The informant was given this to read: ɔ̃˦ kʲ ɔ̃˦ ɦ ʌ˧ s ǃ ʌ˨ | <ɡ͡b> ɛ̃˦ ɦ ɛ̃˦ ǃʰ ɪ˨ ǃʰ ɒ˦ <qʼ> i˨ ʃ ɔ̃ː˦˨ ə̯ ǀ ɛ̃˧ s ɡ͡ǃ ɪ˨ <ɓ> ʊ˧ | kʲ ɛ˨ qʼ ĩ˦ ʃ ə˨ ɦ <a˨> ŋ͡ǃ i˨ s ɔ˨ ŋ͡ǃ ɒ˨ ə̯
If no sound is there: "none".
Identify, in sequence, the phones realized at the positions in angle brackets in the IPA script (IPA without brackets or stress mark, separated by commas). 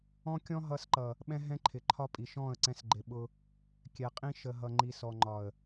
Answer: ɓ, pʼ, ɓ, ʌ˨